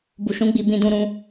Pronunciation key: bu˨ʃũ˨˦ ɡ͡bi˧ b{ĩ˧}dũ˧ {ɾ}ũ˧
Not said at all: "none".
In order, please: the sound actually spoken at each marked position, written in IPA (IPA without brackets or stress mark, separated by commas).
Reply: ĩ˧, ɾ